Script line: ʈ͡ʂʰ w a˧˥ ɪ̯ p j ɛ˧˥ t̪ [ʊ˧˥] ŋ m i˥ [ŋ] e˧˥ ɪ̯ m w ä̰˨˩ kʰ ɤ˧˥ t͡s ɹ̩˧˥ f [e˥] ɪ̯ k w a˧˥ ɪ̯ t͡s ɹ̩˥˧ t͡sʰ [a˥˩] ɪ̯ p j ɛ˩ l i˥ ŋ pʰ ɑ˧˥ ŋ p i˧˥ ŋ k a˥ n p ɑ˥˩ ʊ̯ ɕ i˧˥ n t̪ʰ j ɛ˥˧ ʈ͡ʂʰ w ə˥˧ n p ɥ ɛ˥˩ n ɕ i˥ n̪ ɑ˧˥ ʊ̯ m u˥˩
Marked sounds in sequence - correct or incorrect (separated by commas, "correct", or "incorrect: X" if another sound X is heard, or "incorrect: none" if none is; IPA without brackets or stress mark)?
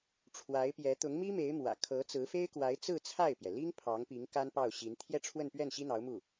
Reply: correct, incorrect: m, correct, correct